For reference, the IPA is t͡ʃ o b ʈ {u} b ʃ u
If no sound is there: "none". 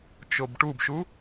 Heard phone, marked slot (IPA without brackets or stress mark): u